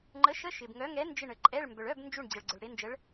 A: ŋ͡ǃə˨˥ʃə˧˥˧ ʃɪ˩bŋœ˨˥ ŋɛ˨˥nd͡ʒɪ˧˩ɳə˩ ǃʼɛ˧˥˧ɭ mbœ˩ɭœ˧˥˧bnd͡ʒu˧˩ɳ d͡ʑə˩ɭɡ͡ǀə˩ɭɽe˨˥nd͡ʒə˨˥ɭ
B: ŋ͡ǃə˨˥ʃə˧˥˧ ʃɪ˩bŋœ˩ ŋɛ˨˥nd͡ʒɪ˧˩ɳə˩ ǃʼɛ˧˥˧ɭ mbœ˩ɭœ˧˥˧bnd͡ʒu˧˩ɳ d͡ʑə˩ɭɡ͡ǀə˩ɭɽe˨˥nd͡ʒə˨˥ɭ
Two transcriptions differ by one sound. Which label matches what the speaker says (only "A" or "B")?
A